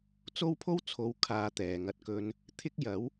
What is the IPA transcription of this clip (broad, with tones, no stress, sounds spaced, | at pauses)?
t͡s o˥ w pʰ o˥ w t͡sʰ o˨˧ w kʰ aː˧ t̪ ɛː˨ ŋ ɐ˧ t̚ k ɵ˥ n | t̪ʰ ɪ˥ k̚ j ɐ˨˥ w